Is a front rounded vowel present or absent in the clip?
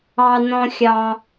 absent